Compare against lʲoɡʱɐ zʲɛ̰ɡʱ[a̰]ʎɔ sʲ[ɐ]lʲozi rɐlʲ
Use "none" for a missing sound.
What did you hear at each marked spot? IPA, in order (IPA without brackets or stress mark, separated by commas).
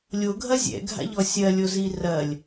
a̰, ɐ